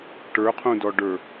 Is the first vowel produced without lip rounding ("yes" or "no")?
yes